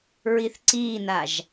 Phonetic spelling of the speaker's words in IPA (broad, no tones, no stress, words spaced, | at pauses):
ɹiθǀiːnaʒ